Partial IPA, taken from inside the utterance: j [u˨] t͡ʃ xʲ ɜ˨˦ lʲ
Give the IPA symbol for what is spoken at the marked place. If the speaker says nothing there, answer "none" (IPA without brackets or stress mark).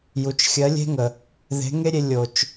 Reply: u˨